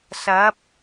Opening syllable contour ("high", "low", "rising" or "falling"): rising